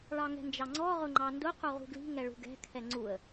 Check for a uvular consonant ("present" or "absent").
present